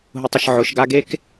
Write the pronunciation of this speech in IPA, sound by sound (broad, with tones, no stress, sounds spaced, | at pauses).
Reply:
ɦ ʊ˨ tˤ ə˨ ʃ ʕ ʊ˨˦ ʃ ɡ a˦ ɡ e˦ k